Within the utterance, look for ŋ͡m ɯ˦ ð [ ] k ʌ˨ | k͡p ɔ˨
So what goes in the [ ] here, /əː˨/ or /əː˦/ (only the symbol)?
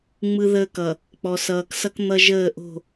əː˦